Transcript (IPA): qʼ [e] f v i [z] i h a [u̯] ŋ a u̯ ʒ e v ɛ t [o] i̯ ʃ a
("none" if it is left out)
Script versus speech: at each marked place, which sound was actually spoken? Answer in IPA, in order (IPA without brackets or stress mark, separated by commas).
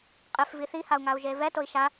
e, θ, u̯, o